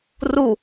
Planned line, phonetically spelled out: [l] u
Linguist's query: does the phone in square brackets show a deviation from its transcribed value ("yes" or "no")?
yes